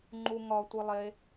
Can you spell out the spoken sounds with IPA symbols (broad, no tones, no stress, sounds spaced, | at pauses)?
ŋ͡ǃ u ŋ ɒ tʷ i lˠ e